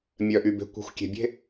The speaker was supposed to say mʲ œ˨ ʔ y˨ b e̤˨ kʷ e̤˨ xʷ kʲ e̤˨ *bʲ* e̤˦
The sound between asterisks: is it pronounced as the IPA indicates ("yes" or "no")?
yes